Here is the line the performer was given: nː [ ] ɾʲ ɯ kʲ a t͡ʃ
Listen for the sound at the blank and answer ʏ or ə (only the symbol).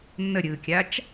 ə